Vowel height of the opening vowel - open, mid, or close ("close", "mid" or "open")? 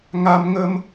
open